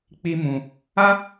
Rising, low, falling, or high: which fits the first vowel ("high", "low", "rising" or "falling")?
high